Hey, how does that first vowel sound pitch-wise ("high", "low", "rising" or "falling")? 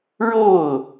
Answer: falling